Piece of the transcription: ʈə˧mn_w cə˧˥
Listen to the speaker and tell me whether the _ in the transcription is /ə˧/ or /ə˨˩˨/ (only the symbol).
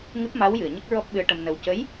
ə˧